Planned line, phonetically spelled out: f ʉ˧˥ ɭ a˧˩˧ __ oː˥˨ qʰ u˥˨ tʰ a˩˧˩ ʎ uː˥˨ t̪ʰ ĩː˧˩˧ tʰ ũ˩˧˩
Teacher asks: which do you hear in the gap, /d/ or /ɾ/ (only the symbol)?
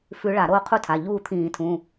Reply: ɾ